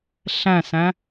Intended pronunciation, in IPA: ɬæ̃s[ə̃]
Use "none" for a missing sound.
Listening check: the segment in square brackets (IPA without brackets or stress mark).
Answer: æ̃